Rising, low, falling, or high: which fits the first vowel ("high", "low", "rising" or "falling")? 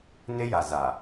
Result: high